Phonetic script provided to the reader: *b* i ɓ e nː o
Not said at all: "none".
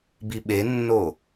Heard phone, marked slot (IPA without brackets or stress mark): b